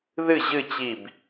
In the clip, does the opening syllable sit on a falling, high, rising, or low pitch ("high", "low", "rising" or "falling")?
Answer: falling